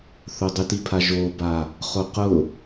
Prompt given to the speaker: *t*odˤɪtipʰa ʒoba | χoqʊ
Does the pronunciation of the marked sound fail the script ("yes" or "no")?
yes